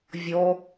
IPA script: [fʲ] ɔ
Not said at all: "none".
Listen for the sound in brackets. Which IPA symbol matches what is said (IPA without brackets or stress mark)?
vʲ